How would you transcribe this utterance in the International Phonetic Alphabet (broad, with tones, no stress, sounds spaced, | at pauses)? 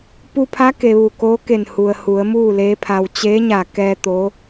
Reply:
p u˧ pʰ a˧˥ k e˩ ʋ u˧˩ k oː˧˥ k e˧˩ n h u˩ ə̯ h u˩˧ ə̯ m uː˥˨ l eː˧˥ pʰ a˧ w t͡ɕ eː˧˥ ɲ a˧˩ k ɛː˧ t̪ o˧˥